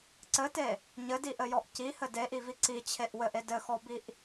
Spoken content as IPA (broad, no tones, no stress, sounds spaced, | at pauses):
ǀ ɘ t e | ɲ ɘ d i ʔ ɘ j ɔ ʔ c i h ɘ d e ʔ i v i ǀ i t͡ɕʰ e ʔ w ɘ ʔ e d ɘ x ɔ b i ʔ